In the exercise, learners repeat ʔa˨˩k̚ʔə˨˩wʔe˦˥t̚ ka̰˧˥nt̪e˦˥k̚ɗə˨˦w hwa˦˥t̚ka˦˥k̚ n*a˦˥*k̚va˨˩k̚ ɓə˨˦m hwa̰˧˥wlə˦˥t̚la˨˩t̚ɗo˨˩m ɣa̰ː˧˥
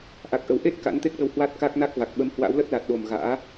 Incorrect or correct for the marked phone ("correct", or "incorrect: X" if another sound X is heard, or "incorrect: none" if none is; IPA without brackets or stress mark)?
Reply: correct